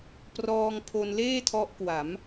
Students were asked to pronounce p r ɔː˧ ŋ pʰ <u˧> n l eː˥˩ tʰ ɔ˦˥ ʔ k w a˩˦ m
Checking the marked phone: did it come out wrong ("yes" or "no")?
yes